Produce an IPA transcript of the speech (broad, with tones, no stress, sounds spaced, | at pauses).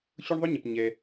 ɕ ʊ˥ ɳ ðˤ ʊ˥ ɲ ə˩ p ɲ ɛ˩